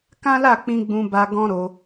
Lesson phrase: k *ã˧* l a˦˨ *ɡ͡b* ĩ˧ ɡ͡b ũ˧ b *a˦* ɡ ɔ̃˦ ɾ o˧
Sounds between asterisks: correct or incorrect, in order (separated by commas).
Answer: incorrect, incorrect, incorrect